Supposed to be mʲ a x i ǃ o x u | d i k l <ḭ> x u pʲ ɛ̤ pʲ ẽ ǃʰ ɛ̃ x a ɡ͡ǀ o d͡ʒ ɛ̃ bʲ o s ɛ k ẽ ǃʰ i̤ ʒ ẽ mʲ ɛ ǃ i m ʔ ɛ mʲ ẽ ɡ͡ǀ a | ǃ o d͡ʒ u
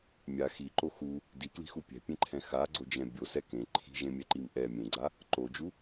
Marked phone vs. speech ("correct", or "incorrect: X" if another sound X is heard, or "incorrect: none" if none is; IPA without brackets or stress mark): incorrect: i̤